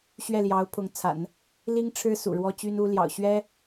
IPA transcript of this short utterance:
ɕ ɥ ɛ˥˩ l j ɑ˧˥ ʊ̯ pʰ ʊ˧˥ ŋ t͡sʰ a̰˨˩˦ n | l i˥ ŋ ʈ͡ʂʰ ɻ̩˥ s ṵ˨˩ ɻ w ɔ˥ t͡ɕ y˥ n u˥ l j ɑ̰˨˩ ʊ̯ ɕ ɥ ɛ˥

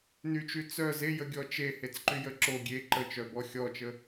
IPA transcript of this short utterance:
n y t͡ʃ y t͡s œ z e j ə ɡʲ ɔ t͡ʃ e h e t͡s ǃ y j ə ǁ o ɡʲ e ǃ ə t͡ʃ œ b ɔ xʲ ɔ t͡ʃ ə

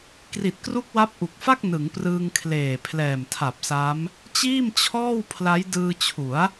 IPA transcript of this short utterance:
k r i˨˩ t̚ k r u˦˥ k̚ w a˦˥ p̚ ʔ u˨˩ k̚ f a˥˩ k̚ n ɯ˩˦ ŋ p r ɯː˧ ŋ kʰ l eː˨˩ pʰ l ɛː˨˩ m tʰ a˨˩ p̚ s a˦˥ m | t͡ɕ iː˥˩ m t͡ɕʰ ɔː˥˩ w pʰ l a˦˥ j d ɯː˧ t͡ɕʰ u˩˦ a̯

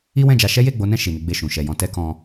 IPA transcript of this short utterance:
i˦ w ɛ̃˦˨ d͡ʒ a˧ ʃ ɛ˦ j e˦˨ ɡ͡b o˨˦ n ɛ̃˦˨ ʃ i˨ n i˨˦ ɡ͡b e˦˨ ʃ ũ˨˦ ʃ ɛ˦˨ j ɔ̃˧ t ɛ˦ k ɔ̃˦

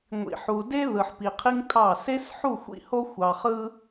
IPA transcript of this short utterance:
ŋʷ ḭ˨ ħ u˨ d e˦ ð ɯ˨ ħ p i˨ qʰ i˦ ŋ tʰ ɑ˦˨ s e˦ s ħ u˦˨ xʷ ḭ˦ h o˦ xʷ ɑ˨ χ ɯ˦

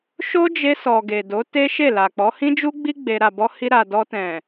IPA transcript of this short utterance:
ʃ o˦ d͡ʒ e˧ s ɔ˨ ɡ e˨ d o˨˦ t e˦ ʃ e˦˨ l a˨ k͡p ɔ˨˦ h ĩ˦ d͡ʒ u˦ ɡ͡b i˦ ɡ͡b e˧ ɾ a˨ b ɔ˧ h i˧ ɾ a˨ d ɔ˧ t ɛ̃˨

